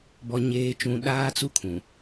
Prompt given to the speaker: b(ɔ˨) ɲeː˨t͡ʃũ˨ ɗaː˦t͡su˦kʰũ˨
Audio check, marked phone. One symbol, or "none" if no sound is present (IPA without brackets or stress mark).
ɔ˨